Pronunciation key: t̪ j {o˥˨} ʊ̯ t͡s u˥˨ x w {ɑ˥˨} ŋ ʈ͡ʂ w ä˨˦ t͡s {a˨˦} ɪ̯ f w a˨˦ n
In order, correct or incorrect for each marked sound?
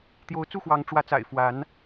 incorrect, incorrect, incorrect

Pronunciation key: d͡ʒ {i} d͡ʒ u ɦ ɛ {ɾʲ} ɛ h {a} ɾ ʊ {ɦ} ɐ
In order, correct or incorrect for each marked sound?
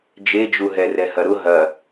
incorrect, incorrect, incorrect, correct

